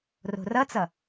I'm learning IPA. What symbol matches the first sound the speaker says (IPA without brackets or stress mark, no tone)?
r